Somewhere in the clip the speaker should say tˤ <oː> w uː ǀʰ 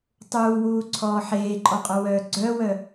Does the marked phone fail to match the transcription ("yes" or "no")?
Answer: yes